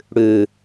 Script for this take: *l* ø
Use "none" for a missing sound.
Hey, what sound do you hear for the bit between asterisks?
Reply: ɽ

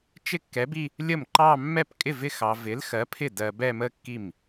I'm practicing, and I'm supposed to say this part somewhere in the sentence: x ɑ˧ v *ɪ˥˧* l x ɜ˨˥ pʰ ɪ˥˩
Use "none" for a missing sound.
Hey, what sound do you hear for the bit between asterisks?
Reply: ɪ˨˥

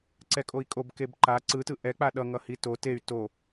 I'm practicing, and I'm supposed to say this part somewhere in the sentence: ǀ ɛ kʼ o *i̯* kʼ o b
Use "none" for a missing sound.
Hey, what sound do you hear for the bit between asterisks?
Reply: i̯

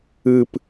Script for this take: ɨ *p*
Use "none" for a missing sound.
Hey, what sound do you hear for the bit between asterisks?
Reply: p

